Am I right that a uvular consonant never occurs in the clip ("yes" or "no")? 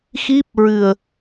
yes